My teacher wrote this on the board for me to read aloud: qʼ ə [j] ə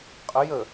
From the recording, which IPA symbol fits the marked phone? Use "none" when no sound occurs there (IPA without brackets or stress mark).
j